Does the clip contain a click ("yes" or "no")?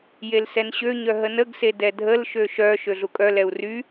no